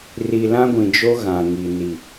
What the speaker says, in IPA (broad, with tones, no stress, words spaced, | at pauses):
ri˨lã˦ɡʷĩ˨d͡ʒo˦ ɣã˨ŋi˨ ni˨